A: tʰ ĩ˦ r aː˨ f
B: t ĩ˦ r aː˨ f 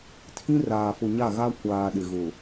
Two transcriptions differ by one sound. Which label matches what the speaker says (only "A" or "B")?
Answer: A